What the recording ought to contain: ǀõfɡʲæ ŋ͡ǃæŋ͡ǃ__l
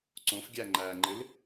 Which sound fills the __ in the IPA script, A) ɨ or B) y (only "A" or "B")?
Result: A